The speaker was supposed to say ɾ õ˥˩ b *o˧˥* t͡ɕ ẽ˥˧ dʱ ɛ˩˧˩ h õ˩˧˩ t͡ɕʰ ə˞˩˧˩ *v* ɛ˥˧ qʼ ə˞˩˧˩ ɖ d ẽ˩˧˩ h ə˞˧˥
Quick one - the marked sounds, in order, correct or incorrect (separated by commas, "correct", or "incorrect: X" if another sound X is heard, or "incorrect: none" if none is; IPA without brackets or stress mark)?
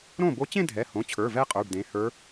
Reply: correct, correct